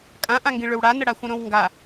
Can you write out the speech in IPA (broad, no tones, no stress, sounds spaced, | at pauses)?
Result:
kʼ ã ʔ ã ŋ ɡ ĩ ɭ ʏ w ɽ a n ə ɽ a xʷ ə̃ ɾ õ w ŋ ɡ a